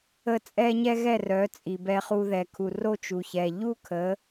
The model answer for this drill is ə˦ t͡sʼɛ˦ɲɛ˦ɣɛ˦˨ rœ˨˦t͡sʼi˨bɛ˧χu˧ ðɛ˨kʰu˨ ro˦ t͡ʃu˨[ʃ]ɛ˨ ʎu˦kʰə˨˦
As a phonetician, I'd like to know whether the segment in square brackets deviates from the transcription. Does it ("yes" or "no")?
yes